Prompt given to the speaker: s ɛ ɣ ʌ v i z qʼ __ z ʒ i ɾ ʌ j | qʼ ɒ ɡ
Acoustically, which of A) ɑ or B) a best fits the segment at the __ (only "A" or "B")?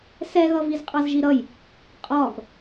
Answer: A